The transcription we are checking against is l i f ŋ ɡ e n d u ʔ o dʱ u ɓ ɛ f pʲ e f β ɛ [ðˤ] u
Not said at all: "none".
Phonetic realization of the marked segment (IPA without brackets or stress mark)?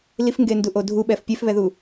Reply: ð